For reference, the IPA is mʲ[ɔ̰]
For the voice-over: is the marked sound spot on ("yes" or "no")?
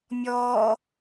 no